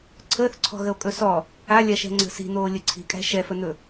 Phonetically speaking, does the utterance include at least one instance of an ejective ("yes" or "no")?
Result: yes